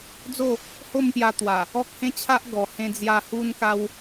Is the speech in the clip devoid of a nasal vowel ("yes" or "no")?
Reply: no